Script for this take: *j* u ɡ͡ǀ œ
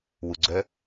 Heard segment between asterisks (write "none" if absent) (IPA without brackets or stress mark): w